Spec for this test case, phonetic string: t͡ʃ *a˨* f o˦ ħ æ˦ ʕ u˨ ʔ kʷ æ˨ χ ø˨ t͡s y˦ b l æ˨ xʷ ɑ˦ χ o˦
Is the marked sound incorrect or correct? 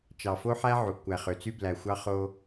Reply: incorrect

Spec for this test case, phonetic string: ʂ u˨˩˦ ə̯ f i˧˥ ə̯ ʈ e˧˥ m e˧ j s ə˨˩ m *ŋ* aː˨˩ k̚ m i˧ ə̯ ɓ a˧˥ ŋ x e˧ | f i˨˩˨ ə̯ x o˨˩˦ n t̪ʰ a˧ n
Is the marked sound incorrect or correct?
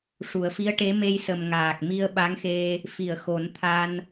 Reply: correct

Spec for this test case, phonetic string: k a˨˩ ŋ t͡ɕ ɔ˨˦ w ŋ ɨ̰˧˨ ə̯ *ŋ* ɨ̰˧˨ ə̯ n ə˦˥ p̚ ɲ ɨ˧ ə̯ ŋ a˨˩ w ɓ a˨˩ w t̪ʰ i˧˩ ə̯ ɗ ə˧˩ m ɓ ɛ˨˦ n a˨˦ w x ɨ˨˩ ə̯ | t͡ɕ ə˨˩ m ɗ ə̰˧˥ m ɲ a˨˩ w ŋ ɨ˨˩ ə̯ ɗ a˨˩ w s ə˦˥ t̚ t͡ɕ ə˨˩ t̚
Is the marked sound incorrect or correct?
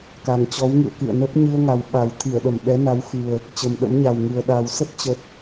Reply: incorrect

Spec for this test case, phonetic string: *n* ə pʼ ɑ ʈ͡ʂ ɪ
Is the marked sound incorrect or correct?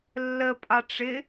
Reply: incorrect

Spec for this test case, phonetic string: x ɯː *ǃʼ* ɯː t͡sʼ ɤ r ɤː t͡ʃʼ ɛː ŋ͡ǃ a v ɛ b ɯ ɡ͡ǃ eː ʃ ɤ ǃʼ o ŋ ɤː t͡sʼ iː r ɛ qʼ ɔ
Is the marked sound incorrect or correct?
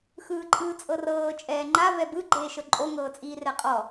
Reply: correct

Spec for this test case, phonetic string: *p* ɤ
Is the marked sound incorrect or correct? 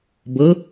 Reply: incorrect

